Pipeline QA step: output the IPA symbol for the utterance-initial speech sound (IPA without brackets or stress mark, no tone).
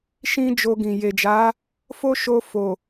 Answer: ʃ